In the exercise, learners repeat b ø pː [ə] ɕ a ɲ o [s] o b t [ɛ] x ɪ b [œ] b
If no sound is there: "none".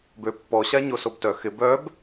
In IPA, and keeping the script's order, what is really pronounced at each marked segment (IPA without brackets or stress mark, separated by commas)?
ɔ, s, œ, œ